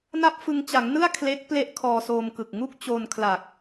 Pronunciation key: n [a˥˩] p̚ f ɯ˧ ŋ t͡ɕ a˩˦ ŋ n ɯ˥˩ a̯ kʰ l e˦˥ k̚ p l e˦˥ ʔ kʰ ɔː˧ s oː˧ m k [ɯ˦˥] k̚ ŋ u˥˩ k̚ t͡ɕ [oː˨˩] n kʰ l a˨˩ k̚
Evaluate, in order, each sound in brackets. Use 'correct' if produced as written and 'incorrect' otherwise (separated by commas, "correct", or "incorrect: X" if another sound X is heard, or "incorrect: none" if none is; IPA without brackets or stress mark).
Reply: correct, incorrect: ɯ˨˩, incorrect: oː˧